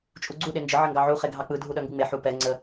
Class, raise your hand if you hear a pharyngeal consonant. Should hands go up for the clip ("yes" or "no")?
yes